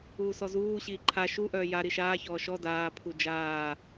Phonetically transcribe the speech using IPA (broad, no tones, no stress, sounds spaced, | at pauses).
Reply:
uː s ɔ z uː ɕ iː ǃʰ a ʃ u ʔ œː j a ɾ i ʃ aː ç ɔː ʃ ɔ d aː pʰ u d͡ʒ aː